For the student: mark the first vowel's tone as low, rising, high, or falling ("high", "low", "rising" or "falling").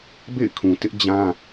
falling